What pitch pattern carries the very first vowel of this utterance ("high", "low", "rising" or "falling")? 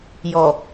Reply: low